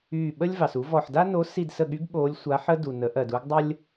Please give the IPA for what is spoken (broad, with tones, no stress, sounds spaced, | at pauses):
yː˦˨ ɓ ə˥ lʲ v ɑ˨ s u˧˥ v ɔ˦˨ ħ d a˥ n o˧˥ s i˦˨ d s ə˦˨ ɠ y˧˥ ɡ ɓ oː˧˥ lʲ sʷ a˧˥ ħ ə˥ d u˨ n ə˩˥ ʔ ɜ˨ d u˥ ɡ dˤ ə˥ lʲ